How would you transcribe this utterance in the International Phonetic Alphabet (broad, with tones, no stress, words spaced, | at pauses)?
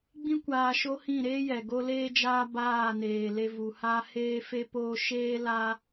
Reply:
ɡ͡bĩ˦kʷaː˧ ʃo˦ hĩ˦˨ɾeː˦jɛ˨ ɡo˦leː˦d͡ʒaː˦ baː˦˨neː˨le˧ vu˨ha˦ heː˧fe˧poː˧ ʃeː˦la˦